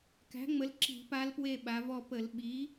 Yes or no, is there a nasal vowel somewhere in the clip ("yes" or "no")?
no